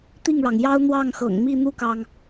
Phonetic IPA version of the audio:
t̪ i˥˩ ŋ ɻ ɑ˩ ŋ j ɑ˥ ʊ̯ n̪ w ɑ˥˩ ŋ x ɤ̰˨˩ ŋ m i˥˧ n̪ u˥˩ k ɑ˩ ŋ

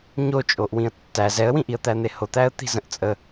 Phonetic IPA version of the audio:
ɲ o t͡ʃʼ o ʔ w ĩ ə̯ tː æ z ɛ ə̯ w ĩ ʔ i ə̯ t̪ æ n̪ e h o t̪ æ ə̯ t̪ i̤ z ə̃ ʔ t͡sʼ ə

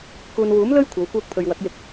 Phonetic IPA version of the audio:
k uː˨ n w uː˨˥ m l ɵ˥ ɥ kʷʰ ɐ˨˧ w kʷ œː˧ k̚ pʰ ɵ˨ ɥ w ɐ˨˥ k̚ j ɪ˨˥ k̚

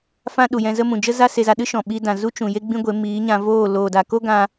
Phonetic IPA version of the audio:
f ã˦ ɗ u˨ j ɛ̃˧ z ə˦ m ũ˨ d͡ʒ ə˦ z a˦ s e˧ z a˧ ɗ ɨ˦ ʃ ɔ̃˨ ɓ i˧ d ã˨ z u˦ t͡ʃ ũ˨ j e˦ ɡ͡b ĩ˦ ɡʷ e˨˦ m iː˨˦ ɲ ã˧ v oː˦˨ l oː˨ d a˨ k o˦ ɡ ã˧

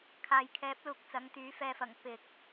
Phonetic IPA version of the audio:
kʰ aː˨ j kʰ ɛː˨˥ p̚ l uː˨ k̚ t͡s ɐ˨˥ ŋ t̪ yː˨˥ f ɛː˧ f ɐ˨˩ ŋ p ɪ˨ k̚

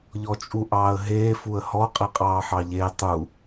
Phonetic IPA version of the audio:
ʎ ɔ t͡ʃʼ u ʔ ɑː ə̯ ɦ eː f u ə̯ h ɔ qʼ i qʼ ɑː ħ ɑ ʎ e tˤ u

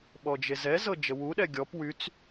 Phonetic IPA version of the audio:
ɓ ɔ d͡ʒ e z ɛ z ɤ d͡ʒ ə w u ɗ ɛ ɡʲ ɔ p w y t͡s

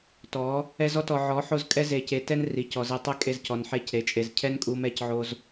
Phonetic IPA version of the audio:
t ɔ˨˦ | ɛ˧ z ɔ˦ t ɔ˨ ʕ ɔ˨˦ ħ o˦˨ z kʼ ɛ˦ z e˧ c e˧ t ɛ˦ n r i˨ c ɔ˨ z e˧ tˤ ɛ˦ kʼ e˧ z c ɔ˨ n ħ e˦˨ c ɾ e˨˦ t͡ʃʼ e˨ z cʰ ɛ˦ n kʼ u˧ m ɛ˦˨ c ʕ o˧ z

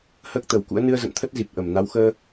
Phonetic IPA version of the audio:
h əː˦˥ k̚ t̪ ə˨˩ w k ṵ˧˥ ə̯ n ɨ˧ ə̯ z ə̰˧˨ n t̪ʰ ə˦˥ t̚ z i˨˩ p̚ ʔ ə˧˩ m n a˨˦ w x əː˧

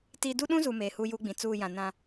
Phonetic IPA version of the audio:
t i˦ d u˦ ɗ ũ˦ z u˨ m eː˨ h uː˦ j uː˦ ɡ͡b ĩ˨ t͡s uː˦˨ j ã˨ n ã˦

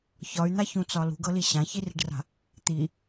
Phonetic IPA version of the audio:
ç ɒ y̯ n̪ a ç ũ t͡s ɒ l ṳ ɡ ɤ l i ɕ ã ç i r i̤ ɖ r a̤ | t̪ i

